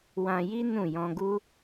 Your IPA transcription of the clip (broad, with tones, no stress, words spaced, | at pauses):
wã˧ji˦ nũ˦˨ jɔ̃˧ɡu˦